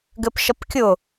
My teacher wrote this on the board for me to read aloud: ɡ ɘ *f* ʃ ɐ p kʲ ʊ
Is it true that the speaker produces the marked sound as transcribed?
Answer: no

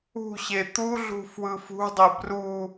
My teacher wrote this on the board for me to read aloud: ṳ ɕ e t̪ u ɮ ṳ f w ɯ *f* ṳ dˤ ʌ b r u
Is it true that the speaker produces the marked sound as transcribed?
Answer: yes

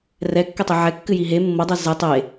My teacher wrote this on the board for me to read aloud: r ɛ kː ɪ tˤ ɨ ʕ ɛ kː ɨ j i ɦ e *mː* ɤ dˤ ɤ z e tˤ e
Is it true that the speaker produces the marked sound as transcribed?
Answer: yes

